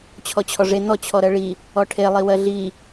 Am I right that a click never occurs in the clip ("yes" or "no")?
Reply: yes